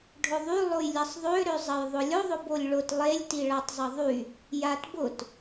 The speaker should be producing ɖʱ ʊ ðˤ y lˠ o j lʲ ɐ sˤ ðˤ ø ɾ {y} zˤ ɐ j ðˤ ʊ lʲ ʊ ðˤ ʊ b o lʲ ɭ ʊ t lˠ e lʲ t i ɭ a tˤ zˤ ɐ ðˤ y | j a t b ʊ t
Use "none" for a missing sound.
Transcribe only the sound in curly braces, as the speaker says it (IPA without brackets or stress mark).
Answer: ø